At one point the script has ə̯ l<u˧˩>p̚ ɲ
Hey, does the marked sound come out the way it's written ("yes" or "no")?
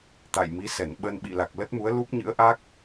no